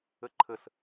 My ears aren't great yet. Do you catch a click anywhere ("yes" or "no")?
yes